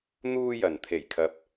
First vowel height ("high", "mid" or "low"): high